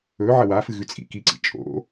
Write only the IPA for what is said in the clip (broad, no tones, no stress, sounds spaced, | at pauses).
ɵ ʕ ɐ w a f ɨ ɣ ʉ t͡sʼ ḭ k i ǀ ḭ t͡ʃʼ o̰